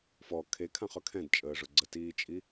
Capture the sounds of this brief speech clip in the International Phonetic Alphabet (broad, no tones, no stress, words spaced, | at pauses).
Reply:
fɔ kʰekʰãχɵ kʰɛ̃dt͡ʃʼəːʐʊ ɡ͡ǀətiːt͡ʃʼi